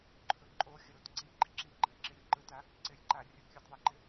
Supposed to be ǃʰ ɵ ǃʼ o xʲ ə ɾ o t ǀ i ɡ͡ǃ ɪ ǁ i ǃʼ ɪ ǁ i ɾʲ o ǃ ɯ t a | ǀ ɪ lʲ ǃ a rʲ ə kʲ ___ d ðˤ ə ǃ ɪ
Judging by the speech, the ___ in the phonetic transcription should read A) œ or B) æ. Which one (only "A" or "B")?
A